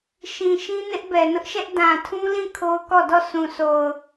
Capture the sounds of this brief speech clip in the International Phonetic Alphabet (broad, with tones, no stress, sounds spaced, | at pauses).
ʃ ĩ˨ ʃ ĩ˦ n ɪ˦ ʔ b ɛ˨ n ʊ˦ ʔ ʃ ɛ˦ ʔ d ã˨ tʰ ũ˦ l ĩ˦˨ kʰ o˦ ʊ̯ k ɔ˦˨ d ɔ˦˨ s ũ˨ s o˨ ʊ̯